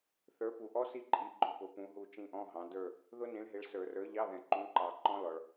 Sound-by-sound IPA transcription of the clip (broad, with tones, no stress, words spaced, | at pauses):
θə˞˨˥pu˨ʔɔ˦˥si˦˨ ǃʼi˨˥ɡ͡ǃʊ˧˥˧pʊ˨˩˦ pũ˨˥ɦu˦˨ t͡ʃĩ˦˨ʔɔ̃˧˥˧ɦɑ̃˨˥ də˞˦˨ | ðʊ˦˥nĩ˨˥ɭɦɪ˨˥ɭ sə˞˨˩˦rə˞˨˥ʎɑ˧˥˧ðɛ̃˨˩˦ ǃũ˨˥ǃɑ˨ ǃɔ̃˦˥lɔ˨ɭ